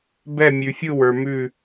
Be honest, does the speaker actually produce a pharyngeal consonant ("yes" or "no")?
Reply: no